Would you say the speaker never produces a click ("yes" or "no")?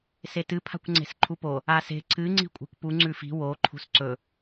no